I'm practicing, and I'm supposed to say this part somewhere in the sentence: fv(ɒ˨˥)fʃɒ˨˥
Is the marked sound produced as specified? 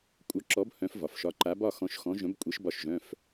no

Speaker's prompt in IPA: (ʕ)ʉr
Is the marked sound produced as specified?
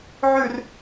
yes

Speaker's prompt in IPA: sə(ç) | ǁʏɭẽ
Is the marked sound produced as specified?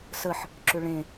no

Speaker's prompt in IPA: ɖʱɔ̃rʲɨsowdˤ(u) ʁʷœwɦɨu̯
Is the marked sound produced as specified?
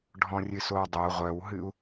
no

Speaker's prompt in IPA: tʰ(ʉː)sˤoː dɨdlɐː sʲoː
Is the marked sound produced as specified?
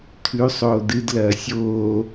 no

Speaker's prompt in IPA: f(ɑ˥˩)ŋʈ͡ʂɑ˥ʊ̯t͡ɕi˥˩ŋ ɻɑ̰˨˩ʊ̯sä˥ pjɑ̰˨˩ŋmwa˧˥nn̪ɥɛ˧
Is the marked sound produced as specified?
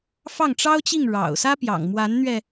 yes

